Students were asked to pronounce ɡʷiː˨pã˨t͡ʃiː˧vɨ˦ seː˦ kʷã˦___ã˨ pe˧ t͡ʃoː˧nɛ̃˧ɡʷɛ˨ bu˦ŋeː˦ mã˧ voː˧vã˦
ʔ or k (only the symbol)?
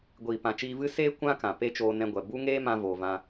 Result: k